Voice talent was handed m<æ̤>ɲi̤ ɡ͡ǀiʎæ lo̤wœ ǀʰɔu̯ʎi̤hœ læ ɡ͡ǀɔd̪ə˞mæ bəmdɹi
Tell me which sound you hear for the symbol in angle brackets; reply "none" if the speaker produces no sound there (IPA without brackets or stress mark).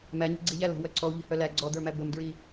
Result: æ